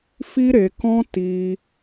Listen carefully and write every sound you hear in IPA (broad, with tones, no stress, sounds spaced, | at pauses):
f i˦ ɾ e˧ k ɔ̃˦ t i˧